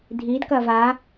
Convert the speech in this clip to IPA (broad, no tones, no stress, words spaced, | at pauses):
dʱid kɐva